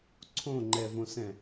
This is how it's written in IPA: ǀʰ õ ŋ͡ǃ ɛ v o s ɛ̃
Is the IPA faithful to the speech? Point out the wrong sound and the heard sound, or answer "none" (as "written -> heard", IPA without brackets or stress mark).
o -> õ